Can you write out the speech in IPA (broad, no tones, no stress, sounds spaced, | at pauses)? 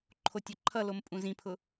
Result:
ǃʰ o tʲ ɵ ǃʰ ʌ l o m pʼ ũ z ĩ pʰ ʊ